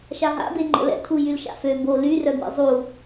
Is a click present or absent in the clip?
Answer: present